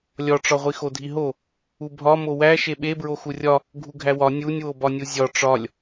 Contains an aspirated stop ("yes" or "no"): no